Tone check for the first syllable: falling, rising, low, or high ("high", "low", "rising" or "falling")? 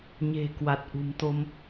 low